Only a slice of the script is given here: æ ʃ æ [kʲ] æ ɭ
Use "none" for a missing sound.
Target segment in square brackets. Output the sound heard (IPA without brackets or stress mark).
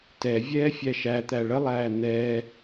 t̪